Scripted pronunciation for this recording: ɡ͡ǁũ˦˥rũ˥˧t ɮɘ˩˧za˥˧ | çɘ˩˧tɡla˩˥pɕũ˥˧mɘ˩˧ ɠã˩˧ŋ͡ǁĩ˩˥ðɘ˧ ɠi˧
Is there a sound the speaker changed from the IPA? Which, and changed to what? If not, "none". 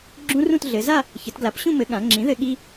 none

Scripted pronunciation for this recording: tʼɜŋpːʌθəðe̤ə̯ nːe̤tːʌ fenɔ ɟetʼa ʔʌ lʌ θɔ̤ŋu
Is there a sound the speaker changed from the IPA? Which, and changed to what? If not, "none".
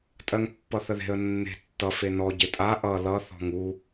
none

